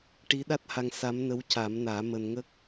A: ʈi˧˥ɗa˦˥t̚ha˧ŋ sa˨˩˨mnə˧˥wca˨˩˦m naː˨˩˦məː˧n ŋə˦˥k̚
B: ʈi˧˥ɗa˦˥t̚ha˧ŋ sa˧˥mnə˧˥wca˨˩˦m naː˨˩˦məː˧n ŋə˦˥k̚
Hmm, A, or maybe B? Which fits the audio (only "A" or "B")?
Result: B